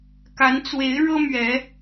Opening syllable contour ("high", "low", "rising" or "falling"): rising